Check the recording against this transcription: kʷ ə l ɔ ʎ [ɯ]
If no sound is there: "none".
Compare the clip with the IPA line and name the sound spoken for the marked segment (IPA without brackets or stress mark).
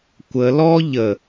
ə